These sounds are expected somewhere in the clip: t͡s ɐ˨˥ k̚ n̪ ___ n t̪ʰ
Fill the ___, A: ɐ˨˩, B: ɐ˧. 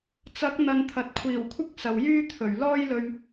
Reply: B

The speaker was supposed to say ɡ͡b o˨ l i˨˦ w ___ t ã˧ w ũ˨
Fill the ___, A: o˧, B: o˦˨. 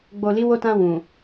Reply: A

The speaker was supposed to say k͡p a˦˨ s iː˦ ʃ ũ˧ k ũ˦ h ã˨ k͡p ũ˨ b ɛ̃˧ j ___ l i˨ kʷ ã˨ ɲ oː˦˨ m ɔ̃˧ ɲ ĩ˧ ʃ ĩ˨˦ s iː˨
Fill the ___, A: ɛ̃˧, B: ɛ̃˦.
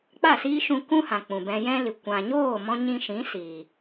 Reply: B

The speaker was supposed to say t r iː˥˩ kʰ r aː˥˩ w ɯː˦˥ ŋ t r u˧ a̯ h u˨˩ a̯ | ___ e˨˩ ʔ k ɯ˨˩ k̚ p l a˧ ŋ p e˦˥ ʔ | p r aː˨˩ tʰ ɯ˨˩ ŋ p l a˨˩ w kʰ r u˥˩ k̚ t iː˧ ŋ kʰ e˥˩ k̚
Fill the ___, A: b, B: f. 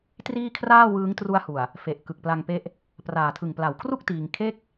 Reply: B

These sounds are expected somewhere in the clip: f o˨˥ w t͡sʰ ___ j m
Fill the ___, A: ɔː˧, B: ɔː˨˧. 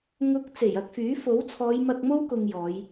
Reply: B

